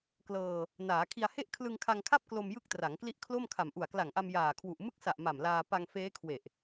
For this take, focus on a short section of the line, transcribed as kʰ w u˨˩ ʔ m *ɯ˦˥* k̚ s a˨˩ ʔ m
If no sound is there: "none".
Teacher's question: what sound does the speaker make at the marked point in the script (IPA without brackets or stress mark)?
ɯ˦˥